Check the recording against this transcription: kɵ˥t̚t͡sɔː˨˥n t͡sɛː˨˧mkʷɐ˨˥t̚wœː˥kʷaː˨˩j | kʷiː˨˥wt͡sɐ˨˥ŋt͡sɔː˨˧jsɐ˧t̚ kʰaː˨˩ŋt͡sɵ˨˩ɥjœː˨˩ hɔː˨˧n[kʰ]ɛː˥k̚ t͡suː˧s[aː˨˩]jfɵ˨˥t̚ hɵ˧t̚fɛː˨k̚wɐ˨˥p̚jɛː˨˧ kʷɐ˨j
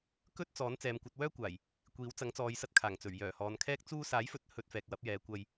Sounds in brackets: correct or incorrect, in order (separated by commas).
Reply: correct, incorrect